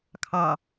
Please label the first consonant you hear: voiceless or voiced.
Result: voiceless